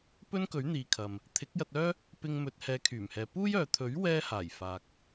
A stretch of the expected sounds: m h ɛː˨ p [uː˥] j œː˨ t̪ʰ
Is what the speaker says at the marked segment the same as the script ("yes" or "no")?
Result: yes